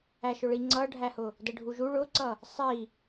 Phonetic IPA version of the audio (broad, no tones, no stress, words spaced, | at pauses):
æʃʊɭi ŋ͡ǀʌɖʱæhʊ | dəɖʱuʒu ɭʊǀʌ | sˤi